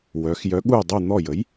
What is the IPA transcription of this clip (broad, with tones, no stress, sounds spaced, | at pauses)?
w œ˩˧ x j œ˨˥ ɠ u˦˨ j dˤ u˦˨ n̪ ɔ˦˨ j ə˨˥ j